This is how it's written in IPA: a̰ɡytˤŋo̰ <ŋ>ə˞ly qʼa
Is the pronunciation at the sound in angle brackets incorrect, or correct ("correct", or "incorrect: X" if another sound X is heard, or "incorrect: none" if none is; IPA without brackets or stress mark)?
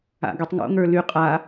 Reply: correct